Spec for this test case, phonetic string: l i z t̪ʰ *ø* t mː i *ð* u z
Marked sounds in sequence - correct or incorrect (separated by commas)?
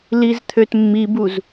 correct, incorrect